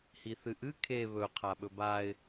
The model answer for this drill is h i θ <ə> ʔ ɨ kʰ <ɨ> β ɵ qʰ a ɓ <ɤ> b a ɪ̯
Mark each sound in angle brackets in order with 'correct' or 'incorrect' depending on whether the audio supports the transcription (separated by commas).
incorrect, incorrect, incorrect